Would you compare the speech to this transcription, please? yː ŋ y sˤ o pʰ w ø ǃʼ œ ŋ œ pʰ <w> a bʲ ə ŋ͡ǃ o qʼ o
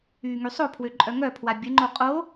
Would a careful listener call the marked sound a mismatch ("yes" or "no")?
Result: no